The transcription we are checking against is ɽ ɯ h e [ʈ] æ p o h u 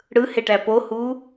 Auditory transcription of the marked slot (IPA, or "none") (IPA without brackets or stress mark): ʈ